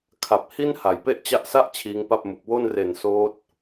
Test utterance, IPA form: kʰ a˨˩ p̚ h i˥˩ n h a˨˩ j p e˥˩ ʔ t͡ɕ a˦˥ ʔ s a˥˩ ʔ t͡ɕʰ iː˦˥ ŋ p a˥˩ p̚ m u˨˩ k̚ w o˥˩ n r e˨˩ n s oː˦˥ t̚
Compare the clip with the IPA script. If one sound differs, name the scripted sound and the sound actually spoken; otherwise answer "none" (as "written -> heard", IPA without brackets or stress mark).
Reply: none